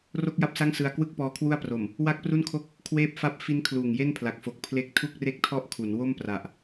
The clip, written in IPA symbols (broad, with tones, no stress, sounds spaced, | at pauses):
r o˥˩ k̚ j a˥˩ p̚ s a˥˩ ŋ s ɯ˧ a̯ k w ɯ˥˩ k̚ p ɔː˧ kʰ w u˥˩ a̯ p r o˨˩ m | w a˥˩ k̚ p r u˥˩ n kʰ o˥˩ k̚ | kʰ w eː˥˩ p̚ f a˥˩ p̚ f i˦˥ n kʰ l uː˨˩ ŋ j e˥˩ n pʰ l a˨˩ k̚ f o˨˩ k̚ pʰ l e˥˩ k̚ tʰ u˥˩ k̚ r e˥˩ k̚ tʰ ɔ˥˩ ʔ kʰ u˩˦ n w o˥˩ m p r a˨˩ ʔ